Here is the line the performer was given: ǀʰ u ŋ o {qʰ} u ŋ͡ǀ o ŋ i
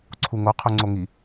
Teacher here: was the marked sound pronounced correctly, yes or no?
yes